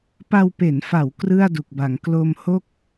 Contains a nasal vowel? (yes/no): no